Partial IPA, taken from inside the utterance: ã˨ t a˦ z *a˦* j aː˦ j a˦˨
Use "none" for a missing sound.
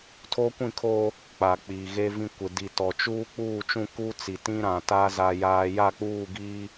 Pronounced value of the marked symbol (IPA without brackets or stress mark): a˦